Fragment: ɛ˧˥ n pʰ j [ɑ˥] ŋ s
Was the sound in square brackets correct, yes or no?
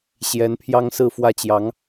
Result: yes